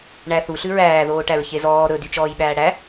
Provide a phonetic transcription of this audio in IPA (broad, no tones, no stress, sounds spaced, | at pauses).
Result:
ɳ æ θ u ɬ ʉ ɹ æː ð oː ʈ æ ɹ ç e z ɔː ɾ ɵ d y t͡ʃ ɔː j ɓ æː ɽ æ